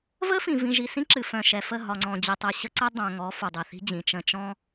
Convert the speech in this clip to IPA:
v ə˦ f ĩ˨ v ĩ˨ ʒ i˨ s ĩ˦ ǁ ɨ˨ f œ̃˨ ʃ ɛ˨ f ə˦˨ ɦ ɒ˨ ŋ͡ǀ ɔ̃˨ d͡ʑ i˨ tˤ ɘ˨ ɕ ə˦ ǀ ə˦ dˤ œ̃˨ ŋ ɔ˨˦ f u˨ dˤ i˨ θ i̤˦ d͡ʑ ĩ˨ t͡ʃ ə̃˨ t͡ʃ ɔ̃˦

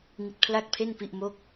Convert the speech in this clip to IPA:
ŋ i˦˥ t̚ pʰ l a˥˩ k̚ pʰ e˥˩ n p i˥˩ ʔ m o˥˩ k̚

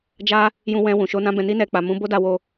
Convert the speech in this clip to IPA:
d͡ʒ a˦ | j ũ˧ w ɛ̃˧ w ũ˨ ʃ o˧ n ã˦ b ɛ̃˧ n i˦ n ɛ˧ k͡p a˨ m ũ˨˦ b o˦ d a˧ w o˧

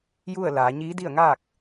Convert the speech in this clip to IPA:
j u˥˨ ə̯ l aː˩˧ ɲ iː˧˥ d i˥˨ ə̯ ŋ aː˥˨ k̚

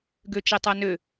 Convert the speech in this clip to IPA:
ɡ ø t͡ʃ ɛ tˤ a n ø

